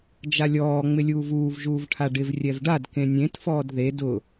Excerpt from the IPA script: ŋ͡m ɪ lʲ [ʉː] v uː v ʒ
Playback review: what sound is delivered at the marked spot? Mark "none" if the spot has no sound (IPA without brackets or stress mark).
uː